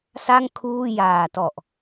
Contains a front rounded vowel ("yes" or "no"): no